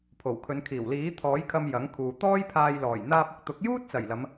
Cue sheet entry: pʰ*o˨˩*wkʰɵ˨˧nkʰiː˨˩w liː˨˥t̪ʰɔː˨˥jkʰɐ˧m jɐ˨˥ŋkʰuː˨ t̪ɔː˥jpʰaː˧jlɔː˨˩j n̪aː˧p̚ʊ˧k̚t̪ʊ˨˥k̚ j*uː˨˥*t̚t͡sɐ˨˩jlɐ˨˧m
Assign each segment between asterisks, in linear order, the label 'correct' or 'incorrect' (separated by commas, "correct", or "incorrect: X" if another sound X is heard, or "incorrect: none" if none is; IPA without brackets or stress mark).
correct, incorrect: uː˥